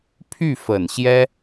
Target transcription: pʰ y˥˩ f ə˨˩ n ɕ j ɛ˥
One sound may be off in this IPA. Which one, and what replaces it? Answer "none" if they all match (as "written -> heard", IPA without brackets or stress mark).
none